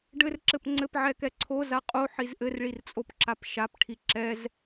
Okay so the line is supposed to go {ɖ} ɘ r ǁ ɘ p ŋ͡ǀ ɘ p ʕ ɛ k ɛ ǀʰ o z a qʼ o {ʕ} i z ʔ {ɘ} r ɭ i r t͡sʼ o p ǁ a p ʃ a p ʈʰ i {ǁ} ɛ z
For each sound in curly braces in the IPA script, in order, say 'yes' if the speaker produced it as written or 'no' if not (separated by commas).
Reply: yes, no, yes, yes